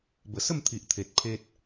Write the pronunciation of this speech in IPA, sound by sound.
b ə˨˩ s ə˥˧ m t̪ʰ i˨ ʔ t̪ʰ e˨ t̚ pʰ e˦ t̚

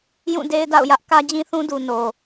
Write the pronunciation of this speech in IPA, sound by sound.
j ũ˦˨ d e˦ ɪ̯ d a̰˦˨ ʊ̯ j ä˦ ʔ k ä˦ d͡ʑ ĩ˦ θ ũ˦ d u˨ n o˨

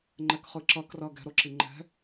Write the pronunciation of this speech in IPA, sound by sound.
ŋ͡ǃ ɛ k χ ɯ ǁ ʌ k r ʌ ɡ ɛ̤ ɾ o ǁ i ŋ͡ǃ ɛ̤

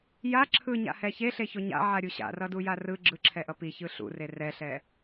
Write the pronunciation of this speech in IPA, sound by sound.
j a ǁʰ ɯ ɲ a̰ h ɛ ç e ɬ e ç o ɲ a̰ ʕ a ɾʲ u ɕ a̰ r ʌ d u j a r ɯ ɡ͡ǁ ɯ ǁʰ ɛ ʔ ʌ p i ç ɯ ɬ ṵ r e r ɛ ɬ ɛ

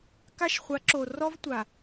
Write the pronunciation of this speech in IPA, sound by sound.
k a˦ ʃ χʷ a˨˦ ǁ o˨ r ɔ˦ v tʷ a˨

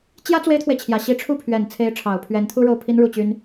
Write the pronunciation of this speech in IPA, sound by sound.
t͡ɕ j ä˥ t͡s w e˥ ɪ̯ t̪ʰ w e˨ ɪ̯ t͡ɕʰ j ä˨˩ ɕ i˧˥ ʈ͡ʂʰ u˥˩ pʰ ɥ ɛ˨˩ n t͡sʰ e˧˥ ɪ̯ ʈ͡ʂʰ ɑ˨˩ ʊ̯ pʰ ɥ ɛ˧˥ n t̪ʰ u˥ ɻ o˥˩ ʊ̯ pʰ i˥ n ɻ u˥˩ t͡ɕ y˥ n

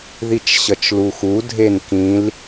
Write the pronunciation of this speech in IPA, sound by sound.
ð i t͡ʃ ɕ ʌ t͡ʃ l u x u dʱ e n k ĩ l

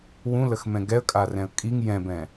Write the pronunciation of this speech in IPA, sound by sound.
w ũ l ə x m ɛ̃ ɡ ɛ ə̯ kʼ a r ɛ̃ ə̯ kʼ i ŋ j ɛ̃ b ɛ̃

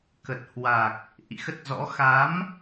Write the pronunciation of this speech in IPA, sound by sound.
k ə˨˩ t̚ h w a˨˩ k̚ | ʔ ḭ˧˨ x ə˦˥ t̚ z ɔ̰˧˥ x a˨˦ m

